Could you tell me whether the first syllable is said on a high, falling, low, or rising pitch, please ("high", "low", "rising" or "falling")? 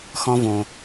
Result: high